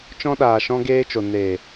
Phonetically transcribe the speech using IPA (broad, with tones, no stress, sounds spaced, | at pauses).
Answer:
t͡ʃ ɔ̃˧ ɗ aː˨ ʃ ɔ̃˧ ɡ eː˧ t͡ʃ o˨ n eː˨